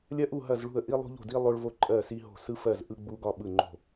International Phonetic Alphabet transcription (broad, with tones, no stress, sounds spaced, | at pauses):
lʲ ɐ˥ ʔ u˥˨ ɦ ɐ˥˨ z ɭ ṳ˥˨ ə̯ ʔ i˥ lˠ ṳ˥ ʎ o̤˥˨ d i˥ lˠ o˥ ɭ v o˥˨ ǃʼ ɜ˥˨ s i˥ ɦ o̤˥˨ s ɯ˥ f ɜ˥˨ z ʔ ɯ˥ ɡ͡b u˥ ɡ ɒ˥ ɓ ɯ˥˨ ŋ͡ǃ o̤˥˨